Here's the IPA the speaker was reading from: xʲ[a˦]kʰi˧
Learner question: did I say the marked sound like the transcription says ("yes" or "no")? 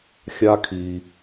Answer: yes